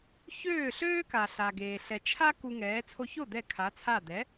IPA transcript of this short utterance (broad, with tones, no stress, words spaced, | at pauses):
çøː˥˩ɬøː˥ka˩ ɬa˩ɡeː˩ ɬɛ˩t͡ʃʰa˥ ku˧ŋɛː˩˥ t͡sʰo˧ço˥˩ d̪ɛ˥˩kʰa˩˥t͡sʰa˥˩ d̪ɛ˩˥